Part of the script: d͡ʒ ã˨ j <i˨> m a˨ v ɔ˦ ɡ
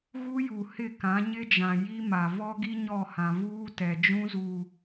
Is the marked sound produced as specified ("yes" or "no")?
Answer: no